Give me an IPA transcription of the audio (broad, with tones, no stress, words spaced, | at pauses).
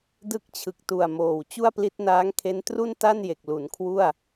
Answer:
dɯ˦˥k̚t͡ɕʰɯ˨˩k̚tu˨˩a̯ moː˨˩w t͡ɕu˥˩a̯pli˦˥t̚ naː˦˥ŋkʰe˦˥n tru˥˩nta˥˩nje˨˩k̚ lu˩˦nkʰwu˥˩a̯